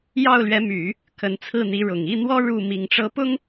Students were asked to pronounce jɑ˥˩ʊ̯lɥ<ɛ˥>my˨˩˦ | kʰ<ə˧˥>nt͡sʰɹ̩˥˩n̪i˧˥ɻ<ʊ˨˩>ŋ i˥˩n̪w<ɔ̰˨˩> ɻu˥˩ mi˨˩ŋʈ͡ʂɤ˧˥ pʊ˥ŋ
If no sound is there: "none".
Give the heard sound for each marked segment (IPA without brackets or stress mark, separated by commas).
ɛ˧˥, ə˧˥, ʊ˨˩, ɔ˥